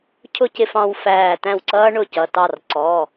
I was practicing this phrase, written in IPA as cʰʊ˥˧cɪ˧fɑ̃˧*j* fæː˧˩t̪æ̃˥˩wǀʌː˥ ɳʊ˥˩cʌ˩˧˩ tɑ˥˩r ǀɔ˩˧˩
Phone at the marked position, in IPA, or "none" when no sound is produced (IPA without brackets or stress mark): w